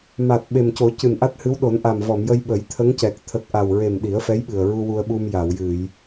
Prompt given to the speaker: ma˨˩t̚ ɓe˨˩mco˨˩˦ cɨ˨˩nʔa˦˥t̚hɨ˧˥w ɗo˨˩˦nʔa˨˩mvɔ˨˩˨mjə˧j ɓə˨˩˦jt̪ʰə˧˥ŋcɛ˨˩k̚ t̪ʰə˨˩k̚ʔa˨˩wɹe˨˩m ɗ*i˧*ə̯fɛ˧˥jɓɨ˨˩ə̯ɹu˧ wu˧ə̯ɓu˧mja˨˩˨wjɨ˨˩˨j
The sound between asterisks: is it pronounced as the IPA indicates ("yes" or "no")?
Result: no